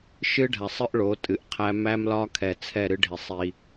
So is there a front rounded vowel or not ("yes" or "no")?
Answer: no